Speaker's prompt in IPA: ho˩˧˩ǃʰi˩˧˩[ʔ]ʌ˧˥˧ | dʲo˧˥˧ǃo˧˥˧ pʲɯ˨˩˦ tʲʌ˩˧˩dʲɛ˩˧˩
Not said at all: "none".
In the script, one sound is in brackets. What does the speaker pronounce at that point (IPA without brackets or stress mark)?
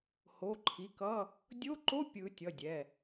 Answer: k